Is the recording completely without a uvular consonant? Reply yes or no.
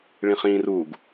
no